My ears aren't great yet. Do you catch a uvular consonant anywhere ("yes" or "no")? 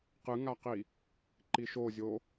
yes